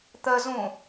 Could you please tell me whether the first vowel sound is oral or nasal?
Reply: oral